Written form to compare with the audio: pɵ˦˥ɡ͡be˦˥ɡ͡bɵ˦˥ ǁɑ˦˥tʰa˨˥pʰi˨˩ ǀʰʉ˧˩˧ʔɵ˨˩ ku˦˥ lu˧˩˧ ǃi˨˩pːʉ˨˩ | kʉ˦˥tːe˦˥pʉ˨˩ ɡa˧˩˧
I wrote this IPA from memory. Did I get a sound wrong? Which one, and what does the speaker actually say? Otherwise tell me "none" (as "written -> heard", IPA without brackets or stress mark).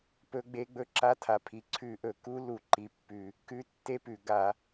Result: ɑ˦˥ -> a˦˥